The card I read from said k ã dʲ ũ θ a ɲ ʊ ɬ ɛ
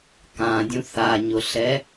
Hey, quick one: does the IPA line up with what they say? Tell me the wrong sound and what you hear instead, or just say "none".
none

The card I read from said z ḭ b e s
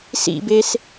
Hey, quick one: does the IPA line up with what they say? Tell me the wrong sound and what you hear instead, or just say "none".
z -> s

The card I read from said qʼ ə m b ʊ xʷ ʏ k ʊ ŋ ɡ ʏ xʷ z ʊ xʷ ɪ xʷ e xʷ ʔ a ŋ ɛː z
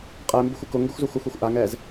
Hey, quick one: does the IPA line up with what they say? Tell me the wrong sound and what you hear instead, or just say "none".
ə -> ɛ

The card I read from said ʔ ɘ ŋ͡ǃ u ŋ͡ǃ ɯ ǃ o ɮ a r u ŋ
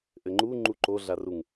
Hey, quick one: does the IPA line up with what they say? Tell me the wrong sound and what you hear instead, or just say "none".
ɯ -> u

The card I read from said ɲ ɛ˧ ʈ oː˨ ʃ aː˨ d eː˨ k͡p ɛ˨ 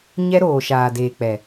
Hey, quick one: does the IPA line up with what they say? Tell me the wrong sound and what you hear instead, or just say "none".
ʈ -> ɾ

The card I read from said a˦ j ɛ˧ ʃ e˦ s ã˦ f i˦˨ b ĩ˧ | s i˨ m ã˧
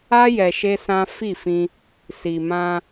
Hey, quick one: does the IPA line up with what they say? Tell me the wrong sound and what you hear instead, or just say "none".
b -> f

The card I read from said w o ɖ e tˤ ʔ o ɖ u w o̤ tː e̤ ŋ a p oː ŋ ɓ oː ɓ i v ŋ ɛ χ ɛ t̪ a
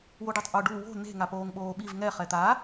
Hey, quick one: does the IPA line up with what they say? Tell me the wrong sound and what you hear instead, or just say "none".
tː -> n̪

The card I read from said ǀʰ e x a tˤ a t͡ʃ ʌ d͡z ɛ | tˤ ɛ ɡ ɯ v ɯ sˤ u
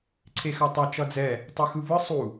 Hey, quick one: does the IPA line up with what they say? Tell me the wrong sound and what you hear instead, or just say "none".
ɡ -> x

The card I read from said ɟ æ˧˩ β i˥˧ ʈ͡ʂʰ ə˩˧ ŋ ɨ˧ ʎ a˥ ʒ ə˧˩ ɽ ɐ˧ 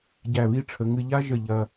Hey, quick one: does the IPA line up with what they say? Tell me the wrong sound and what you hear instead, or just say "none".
ɽ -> ʎ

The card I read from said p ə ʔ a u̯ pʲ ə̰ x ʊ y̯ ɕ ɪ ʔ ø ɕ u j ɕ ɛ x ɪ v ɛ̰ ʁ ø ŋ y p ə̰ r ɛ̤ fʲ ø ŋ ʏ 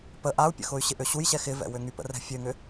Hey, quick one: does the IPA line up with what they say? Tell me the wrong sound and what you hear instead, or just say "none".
ʁ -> w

